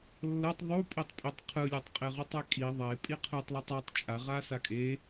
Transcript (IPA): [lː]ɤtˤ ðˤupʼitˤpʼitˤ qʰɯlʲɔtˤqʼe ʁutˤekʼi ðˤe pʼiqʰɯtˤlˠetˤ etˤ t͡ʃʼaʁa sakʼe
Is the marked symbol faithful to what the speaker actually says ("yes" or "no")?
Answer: yes